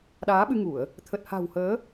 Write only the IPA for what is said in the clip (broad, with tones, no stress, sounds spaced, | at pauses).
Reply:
ɗ aː˨˦ ɓ ɨ˧ ŋ u˧˩˨ ə̯ | t̪ʰ ə˨˩ t̚ h a̤˨˩ w h əː˨˦